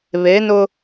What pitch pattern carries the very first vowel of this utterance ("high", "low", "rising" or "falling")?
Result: rising